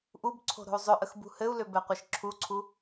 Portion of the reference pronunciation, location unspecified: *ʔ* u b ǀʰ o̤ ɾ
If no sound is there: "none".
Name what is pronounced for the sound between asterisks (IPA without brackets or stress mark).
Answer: ʔ